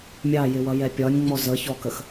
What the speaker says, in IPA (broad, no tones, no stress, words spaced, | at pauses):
mʲɑjɪwʌjɛ pʲɒnʲŋ͡mɔ zəçɔkəx